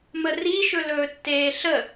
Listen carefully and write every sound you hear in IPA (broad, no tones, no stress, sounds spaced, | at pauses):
m ə r i ʃ ɵ l ɵː tː eː ɬ ə